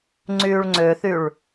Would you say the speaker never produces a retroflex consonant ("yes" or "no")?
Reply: no